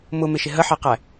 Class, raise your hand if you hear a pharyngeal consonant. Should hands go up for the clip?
yes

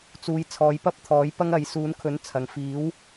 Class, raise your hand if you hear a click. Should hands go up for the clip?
no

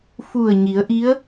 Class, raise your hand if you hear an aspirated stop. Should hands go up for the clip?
no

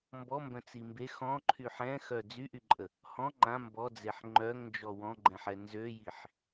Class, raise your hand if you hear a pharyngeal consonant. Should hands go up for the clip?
yes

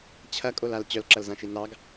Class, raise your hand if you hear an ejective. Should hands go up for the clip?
yes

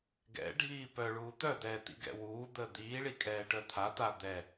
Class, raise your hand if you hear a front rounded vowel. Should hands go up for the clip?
yes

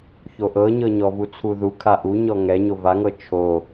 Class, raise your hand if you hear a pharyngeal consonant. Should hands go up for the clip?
no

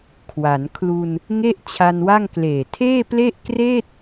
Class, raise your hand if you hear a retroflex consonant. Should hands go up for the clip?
no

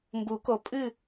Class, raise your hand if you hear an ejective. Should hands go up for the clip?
yes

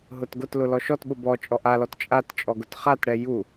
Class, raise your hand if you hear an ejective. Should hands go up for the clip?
yes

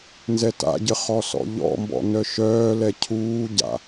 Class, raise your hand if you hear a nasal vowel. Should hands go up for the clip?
no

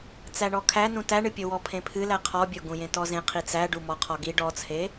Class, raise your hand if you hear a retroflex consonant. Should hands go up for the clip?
yes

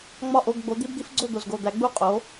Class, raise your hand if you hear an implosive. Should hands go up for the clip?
no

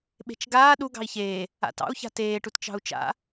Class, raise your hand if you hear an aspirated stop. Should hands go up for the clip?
no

